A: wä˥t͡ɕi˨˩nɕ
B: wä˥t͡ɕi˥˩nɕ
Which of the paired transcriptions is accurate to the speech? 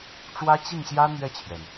B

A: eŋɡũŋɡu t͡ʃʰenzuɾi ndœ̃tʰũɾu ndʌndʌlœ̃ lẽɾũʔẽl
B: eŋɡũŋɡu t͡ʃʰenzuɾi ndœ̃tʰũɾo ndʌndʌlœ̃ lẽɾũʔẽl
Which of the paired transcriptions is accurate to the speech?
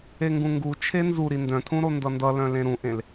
B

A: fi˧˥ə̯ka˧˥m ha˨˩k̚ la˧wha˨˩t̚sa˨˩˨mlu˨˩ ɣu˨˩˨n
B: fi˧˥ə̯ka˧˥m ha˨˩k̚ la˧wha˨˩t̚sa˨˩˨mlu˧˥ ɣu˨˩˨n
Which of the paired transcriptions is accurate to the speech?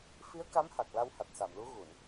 B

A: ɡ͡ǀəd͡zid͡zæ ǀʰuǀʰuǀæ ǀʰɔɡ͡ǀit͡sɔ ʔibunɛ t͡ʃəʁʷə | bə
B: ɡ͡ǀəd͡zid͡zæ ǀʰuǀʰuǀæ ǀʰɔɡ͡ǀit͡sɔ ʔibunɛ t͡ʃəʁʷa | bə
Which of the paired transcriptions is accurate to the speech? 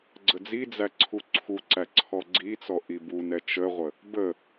A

